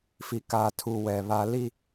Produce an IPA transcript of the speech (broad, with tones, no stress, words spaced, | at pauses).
fi˨kaː˨tʰu˨ wɛ˨βa˦ li˦